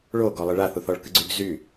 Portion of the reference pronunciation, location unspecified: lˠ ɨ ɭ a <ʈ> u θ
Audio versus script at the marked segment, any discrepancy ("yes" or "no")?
yes